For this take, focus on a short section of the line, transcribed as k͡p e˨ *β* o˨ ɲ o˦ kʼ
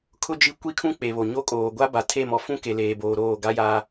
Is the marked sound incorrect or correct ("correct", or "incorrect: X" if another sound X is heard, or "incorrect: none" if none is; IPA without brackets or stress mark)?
correct